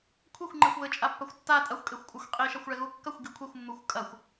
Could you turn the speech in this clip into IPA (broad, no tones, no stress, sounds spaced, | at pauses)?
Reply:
kʷʰ e xʷ ŋ͡ǃ e xʷ β ɘ t͡ʃʼ a pː ɐ xʷ tː a tʼ ɐ xʷ kʼ e xʷ kʷʼ a xʷ qʼ i ʃ a xʷ ɭ ɛ ɣ u kː ɐ xʷ ɡ i kʷʰ e xʷ mː u xʷ kʼ ɐ xʷ